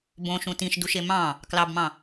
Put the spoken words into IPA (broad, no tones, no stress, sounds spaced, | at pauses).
b õ ʃ ũ t ĩ ʃ d u ʃ e m ɑ̃ | k l ɑ b m ɑ̃